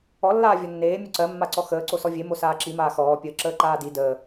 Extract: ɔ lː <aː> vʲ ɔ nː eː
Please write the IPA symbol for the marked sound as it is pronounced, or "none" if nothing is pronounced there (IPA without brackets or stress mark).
aː